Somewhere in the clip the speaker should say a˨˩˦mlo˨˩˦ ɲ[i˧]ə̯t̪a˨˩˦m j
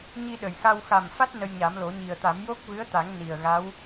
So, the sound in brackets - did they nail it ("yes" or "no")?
no